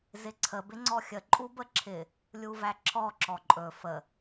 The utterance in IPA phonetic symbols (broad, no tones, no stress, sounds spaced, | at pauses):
z ɪ ǀʰ ə b ɪ ŋ͡ǀ ɔ xʲ ə ǃʼ u b ə ǁʰ ɪ | lʲ u v æ ǁʰ ɔ ǁ ɔ ǃʼ ɵ f ə